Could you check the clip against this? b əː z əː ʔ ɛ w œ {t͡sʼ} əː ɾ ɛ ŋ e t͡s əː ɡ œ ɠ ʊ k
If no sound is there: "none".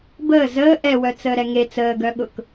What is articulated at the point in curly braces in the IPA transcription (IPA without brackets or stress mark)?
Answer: t͡s